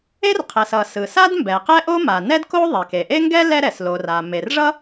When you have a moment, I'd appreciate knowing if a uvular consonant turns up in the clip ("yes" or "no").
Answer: yes